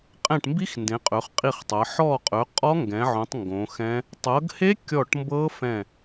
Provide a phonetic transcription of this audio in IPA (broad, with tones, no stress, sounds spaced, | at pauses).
qʼ ɛ̃˦˨ ʈ m b i˦˥ x n d ẽ˨˦ qʼ ɵ˨˦ χ qʼ i˦˨ χ tˤ ɤ˨˦ ħ ɔ˦˨ qʼ ɵ˨˦ qʼ ɔ˦˥ ŋ ɡ ɛ̃˨˦ ʕ õ˨˦ tˤ ŋ ɡ õ˨˦ x ɛ̃˦˥ | tˤ ɤ˨˦ ɡ h e˦˥ kʲ ɔ˦˨ ʈ m b ɤ˦˥ f ɛ̃˦˨